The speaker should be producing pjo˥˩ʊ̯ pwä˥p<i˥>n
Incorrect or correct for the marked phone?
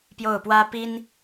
correct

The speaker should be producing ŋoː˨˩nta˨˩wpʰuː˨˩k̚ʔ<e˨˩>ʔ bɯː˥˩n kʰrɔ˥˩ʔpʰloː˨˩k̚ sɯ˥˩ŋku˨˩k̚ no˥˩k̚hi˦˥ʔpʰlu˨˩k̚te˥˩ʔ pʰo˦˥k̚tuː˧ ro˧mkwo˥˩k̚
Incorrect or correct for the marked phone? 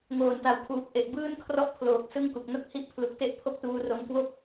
correct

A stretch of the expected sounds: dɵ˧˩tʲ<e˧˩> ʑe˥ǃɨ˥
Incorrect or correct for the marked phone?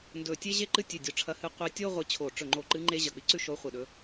incorrect: e˥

